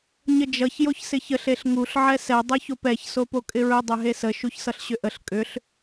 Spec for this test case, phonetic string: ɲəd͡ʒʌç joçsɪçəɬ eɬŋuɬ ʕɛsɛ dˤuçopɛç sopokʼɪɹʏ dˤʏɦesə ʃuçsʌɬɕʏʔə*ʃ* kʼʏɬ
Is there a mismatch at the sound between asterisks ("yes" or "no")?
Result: yes